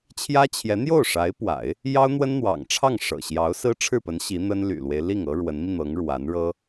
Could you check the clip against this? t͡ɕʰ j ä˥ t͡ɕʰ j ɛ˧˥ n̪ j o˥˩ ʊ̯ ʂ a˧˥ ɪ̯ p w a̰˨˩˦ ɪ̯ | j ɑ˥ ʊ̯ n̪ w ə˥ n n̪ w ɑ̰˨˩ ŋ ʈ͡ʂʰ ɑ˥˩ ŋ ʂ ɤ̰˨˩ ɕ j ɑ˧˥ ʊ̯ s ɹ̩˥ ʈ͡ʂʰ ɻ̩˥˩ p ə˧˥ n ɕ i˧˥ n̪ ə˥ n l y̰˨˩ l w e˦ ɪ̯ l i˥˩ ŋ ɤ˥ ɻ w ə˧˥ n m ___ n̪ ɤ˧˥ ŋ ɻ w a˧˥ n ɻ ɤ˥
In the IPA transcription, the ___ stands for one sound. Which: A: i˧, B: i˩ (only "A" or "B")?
A